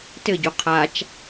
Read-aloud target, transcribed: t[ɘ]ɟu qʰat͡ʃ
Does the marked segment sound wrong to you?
no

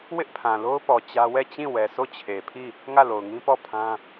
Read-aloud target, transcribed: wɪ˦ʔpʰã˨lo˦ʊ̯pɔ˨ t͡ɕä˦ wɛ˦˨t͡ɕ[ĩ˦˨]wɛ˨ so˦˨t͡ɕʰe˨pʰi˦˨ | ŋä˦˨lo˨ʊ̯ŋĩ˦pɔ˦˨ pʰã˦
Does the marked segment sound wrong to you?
no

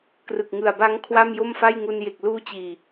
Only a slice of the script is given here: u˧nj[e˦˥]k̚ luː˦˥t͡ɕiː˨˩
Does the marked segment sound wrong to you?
yes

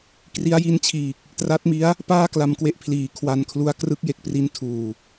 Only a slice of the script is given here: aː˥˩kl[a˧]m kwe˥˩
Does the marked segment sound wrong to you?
no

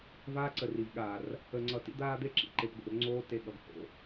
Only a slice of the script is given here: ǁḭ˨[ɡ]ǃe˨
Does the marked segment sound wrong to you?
yes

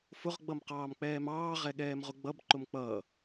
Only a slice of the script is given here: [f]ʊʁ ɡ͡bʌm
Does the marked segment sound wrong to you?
no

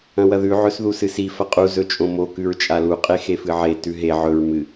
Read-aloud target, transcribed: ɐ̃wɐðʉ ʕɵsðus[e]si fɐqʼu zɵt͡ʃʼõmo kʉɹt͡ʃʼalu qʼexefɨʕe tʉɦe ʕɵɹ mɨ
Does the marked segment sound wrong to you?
yes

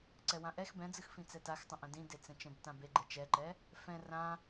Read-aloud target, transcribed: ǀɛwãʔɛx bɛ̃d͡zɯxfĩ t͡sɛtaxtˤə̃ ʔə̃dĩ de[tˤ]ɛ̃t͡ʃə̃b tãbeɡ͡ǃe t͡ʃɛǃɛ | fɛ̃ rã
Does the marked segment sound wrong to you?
yes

